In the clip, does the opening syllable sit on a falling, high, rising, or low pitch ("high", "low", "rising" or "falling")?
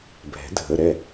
rising